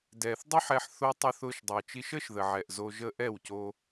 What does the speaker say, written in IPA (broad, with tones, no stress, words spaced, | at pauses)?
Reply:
dɛː˨θdˤo˦ħɛ˧ħ θo˧ tˤʊ˧θʊː˧ʃdˤɤ˨t͡ʃi˧ʃ əː˦ʃðə˨ʕɛ˨ʔ zo˧ʒə˦ ʔɛ˦˨wco˧